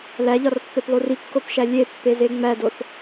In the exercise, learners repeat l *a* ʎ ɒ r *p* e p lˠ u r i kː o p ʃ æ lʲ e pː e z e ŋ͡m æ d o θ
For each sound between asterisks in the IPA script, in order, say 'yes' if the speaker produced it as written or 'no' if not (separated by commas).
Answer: no, no